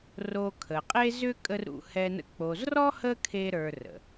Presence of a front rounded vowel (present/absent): present